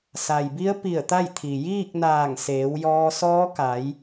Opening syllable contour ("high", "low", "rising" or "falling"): low